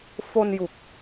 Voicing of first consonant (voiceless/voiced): voiceless